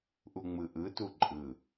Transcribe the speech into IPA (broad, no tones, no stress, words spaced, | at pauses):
ʔuŋ͡mɯʔɯtu ǃʼɯ